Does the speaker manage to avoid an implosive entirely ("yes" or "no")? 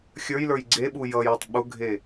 no